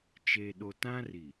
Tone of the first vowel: low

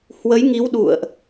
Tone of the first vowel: rising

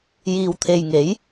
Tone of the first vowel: low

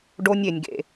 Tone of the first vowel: high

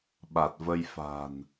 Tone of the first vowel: low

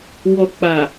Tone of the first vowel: low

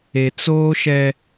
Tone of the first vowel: low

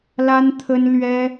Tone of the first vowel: high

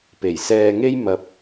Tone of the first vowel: low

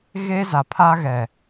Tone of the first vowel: high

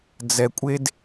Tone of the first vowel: low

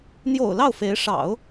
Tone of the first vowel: low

